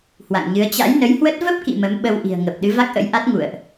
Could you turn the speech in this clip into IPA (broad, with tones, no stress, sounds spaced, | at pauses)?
h w a̰˧˨ ŋ ɲ ɨ˨˦ ə̯ t͡ɕ a̰˧˥ j n ə˨˦ j h w ə˦˥ t̚ v ə˦˥ p̚ k ḭ˧˨ m ə˨˦ m ɓ ə˧ w ʔ i̤˨˩ ə̯ ŋ ə˨˩ p̚ ɗ ɨ˨˦ v a˦˥ k̚ ʔ ə̰˧˥ j ʔ a˦˥ t̚ ŋ ṵ˧˨ ə̯ ʔ